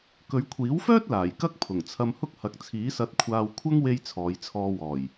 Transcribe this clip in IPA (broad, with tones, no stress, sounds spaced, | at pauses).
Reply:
k ɵ˨˧ ɥ kʷʰ iː˨˥ w f œː˥ t̚ l aː˨˩ j k ɐ˥ k̚ pʰ ʊ˨˩ ŋ t͡sʰ ɐ˧ m h ʊ˥ k̚ h ɐ˨˥ k̚ t͡sʰ iː˨˥ s ɐ˧ t̚ kʷʰ aː˧ w kʷʰ ɐ˥ ŋ w e˧ j t͡sʰ ɔː˨˧ j t͡sʰ ɔː˧ w ɔː˨˩ j